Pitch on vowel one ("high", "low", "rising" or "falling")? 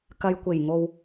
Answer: low